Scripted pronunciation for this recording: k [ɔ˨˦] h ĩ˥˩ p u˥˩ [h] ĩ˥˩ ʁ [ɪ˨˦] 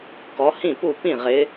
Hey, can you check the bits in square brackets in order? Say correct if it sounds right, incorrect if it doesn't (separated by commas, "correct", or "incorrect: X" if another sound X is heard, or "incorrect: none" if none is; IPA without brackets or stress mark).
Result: correct, incorrect: p, correct